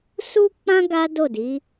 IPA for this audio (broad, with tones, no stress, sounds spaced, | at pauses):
s u˦ k͡p ã˦ ɡ a˦ d o˦˨ d i˨˦